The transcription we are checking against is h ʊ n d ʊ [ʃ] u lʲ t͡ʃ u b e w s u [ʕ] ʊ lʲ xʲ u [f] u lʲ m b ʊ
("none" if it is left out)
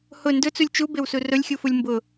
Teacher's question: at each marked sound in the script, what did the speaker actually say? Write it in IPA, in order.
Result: t͡s, r, f

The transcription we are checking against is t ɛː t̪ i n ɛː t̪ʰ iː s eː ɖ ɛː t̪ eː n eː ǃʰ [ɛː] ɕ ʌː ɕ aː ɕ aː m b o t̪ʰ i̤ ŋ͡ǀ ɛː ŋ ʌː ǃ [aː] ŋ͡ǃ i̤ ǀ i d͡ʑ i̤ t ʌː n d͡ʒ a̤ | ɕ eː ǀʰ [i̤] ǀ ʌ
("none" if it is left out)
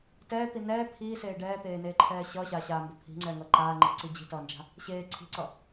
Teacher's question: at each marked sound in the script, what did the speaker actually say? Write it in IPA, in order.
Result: ɛː, aː, i̤

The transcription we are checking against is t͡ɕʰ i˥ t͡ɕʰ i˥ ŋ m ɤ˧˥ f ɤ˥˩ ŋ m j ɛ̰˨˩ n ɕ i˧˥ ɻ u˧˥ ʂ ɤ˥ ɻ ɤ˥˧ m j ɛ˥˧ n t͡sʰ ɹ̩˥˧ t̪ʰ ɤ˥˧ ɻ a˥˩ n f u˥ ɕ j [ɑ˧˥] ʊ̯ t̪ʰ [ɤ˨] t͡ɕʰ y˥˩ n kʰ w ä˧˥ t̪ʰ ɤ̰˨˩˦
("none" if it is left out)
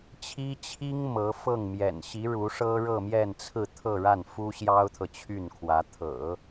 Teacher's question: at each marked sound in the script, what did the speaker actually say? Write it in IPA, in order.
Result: ɑ˥, ɤ˨

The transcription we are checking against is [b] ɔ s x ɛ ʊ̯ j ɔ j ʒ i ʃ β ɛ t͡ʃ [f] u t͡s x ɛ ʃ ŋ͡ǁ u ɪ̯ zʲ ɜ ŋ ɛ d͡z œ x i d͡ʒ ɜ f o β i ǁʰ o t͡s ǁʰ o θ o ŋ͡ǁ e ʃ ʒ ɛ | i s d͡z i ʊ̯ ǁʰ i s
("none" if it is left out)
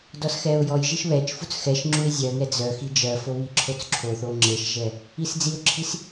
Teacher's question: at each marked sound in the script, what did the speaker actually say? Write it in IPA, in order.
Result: d, f

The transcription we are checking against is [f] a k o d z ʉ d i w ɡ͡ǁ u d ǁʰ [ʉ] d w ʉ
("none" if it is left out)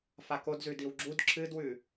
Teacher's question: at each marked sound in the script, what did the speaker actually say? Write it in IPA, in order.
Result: f, ɨ

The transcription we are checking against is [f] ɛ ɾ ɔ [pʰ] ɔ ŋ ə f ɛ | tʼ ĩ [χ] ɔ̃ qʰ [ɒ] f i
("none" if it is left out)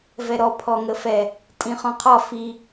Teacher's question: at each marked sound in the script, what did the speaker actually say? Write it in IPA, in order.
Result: v, pʰ, χ, ɒ

